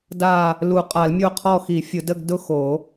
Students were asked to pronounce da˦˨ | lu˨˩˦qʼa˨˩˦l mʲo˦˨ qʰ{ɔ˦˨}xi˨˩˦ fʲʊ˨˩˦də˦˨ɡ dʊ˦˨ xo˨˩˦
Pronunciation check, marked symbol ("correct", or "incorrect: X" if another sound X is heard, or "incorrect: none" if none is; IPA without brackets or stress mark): correct